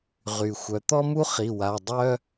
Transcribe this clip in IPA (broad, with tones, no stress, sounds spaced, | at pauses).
ʁ y˩ xʷ œ˩ t̪ ɔ˥ m u˥ χ i˩˧˩ w a˩˧˩ dˤ œ˥